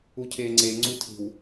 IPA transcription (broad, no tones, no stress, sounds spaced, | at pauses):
u cʰ eː ŋ͡ǀ e ŋ͡ǀ u tʰ i̤ w